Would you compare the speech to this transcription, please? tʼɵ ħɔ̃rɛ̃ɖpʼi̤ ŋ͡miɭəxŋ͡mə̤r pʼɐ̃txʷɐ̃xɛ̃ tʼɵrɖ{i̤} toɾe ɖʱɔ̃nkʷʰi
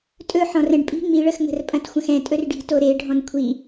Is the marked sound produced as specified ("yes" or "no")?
yes